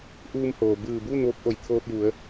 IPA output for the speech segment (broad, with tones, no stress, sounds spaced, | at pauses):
ʔ uː˧ m h oː˩ b ɯː˧˩ b uː˥˨ n ʋ o˧˥ p̚ ʔ o˧˩ j t̪ʰ oː˧ t̚ j u˩˧ ə̯